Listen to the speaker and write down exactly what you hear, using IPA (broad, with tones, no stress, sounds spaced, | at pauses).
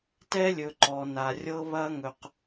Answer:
t ɛ˦ lʲ ɵ˨ ǃ ɔ˨ n a˨ rʲ ɤ˦ β ɐ˦ ŋ ɵ˧ q